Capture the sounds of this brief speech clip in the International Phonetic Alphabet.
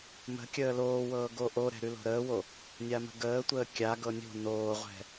mə̤kʲəː loːwɤː ɡoʔoɾɛ̤ ɾʉlo̤ɾəːwo | nʲamə̤ɡəːtʷəː kʲaɡɤ nʲo̤ noːʁʷɛ̤

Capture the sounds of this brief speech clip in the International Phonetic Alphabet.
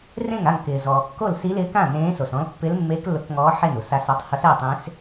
rẽ˥˩ŋa˥˩ŋ kɪː˩zɔː˩ kːo˥˩lsi˧˥lɪː˧˥kã˥˩ nẽː˧˥so˩sɔ̃˧˥l pːɪ˧˥l mːe˧˥k lʊ˧˥kŋɔː˧˥ ħe˥˩nu˩sa˧˥sa˧˥tˤ hʊ˧˥sɛ˥˩tˤẽ˧˥s

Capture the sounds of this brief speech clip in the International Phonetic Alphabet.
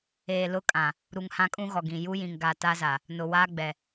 eː˨lʊ˦kʼã˨ | ɾu˨ŋhã˦kʼũ˦ɣɔ˨ ɡĩ˨ ju˦jĩ˨ŋɡa˨ ta˦za˨ | nʊ˨waː˦ɡ͡bɛ˨

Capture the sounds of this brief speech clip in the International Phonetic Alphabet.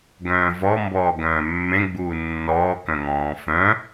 ɡœ̃ːvɔ mbɔːɡœ̃ːmːẽɡ͡buː nːɔː kœ̃ŋɔ̃ːfœ̃

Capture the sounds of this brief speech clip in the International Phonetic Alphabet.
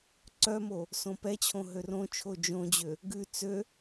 ǀœmo | sõpɛt͡ɕʰõ ɦørõt͡ʃʰo d͡ʒõd͡ʑø | ɡʉ t͡sø

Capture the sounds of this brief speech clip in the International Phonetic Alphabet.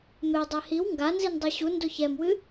medˤɛ hiw ŋɡanzindˤɛ ɕundo çɛmwɨ

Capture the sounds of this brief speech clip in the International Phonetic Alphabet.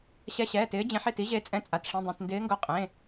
ɕɛ˨˦ɕɛː˩˧˩tɪː˨˦ d͡ʑẽ˨˦ħe˩˧˩ti˨˦ʑe˨˦ t͡sʼɛ̃˨˦t͡sʼa˩˧˩t ʂĩ˩˧˩dˤẽ˩˧˩tndɪː˨˦ŋɡo˨˦ qʼẽ˩˧˩

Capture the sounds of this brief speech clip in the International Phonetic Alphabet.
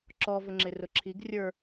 ǁɔvʊŋ͡ǁɪ rʊǁʰiɡ rʲə˞

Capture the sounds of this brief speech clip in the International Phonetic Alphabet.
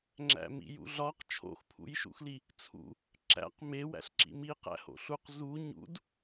ŋ͡ǁæ̰mḭjṵɮɒq t͡ʃʰo̰xpʰṵjʃṵxli | t͡sʰṵ | ǁæ̰q me wæ̰ɬǁḭmi qæ̰ho̰ɬuq zu ɲṵd

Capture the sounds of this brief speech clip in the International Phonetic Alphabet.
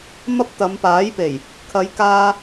mɐ˥p̚t̪ɐ˨˧mpaː˨˥jpe˨˩j | kʰɐ˨˧jkaː˧

